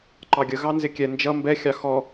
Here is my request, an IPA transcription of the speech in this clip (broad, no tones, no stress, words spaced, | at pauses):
ǃɑɡʲə ɣɑnzɪkʲɛ nd͡ʒʌ mbɛ xʲɑxɔ